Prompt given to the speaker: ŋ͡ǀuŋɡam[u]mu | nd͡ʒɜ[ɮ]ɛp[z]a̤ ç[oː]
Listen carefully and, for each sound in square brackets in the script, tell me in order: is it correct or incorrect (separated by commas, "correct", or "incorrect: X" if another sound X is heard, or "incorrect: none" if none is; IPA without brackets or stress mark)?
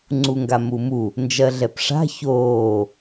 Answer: correct, correct, incorrect: ʂ, correct